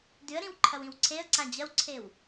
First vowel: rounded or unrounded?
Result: rounded